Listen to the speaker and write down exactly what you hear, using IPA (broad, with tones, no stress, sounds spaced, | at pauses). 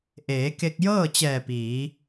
ʔ eː˩˧ k e˧ k̚ j ɤː˥˨ t͡ɕ ɛː˧˩ p iː˩˧